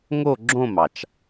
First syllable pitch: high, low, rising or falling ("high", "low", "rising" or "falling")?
falling